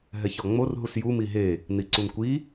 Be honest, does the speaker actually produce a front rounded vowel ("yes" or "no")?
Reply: no